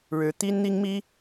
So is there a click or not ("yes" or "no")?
no